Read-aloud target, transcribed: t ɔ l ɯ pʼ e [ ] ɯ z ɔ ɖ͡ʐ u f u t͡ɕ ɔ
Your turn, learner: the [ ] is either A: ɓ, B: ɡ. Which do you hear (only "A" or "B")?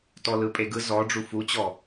B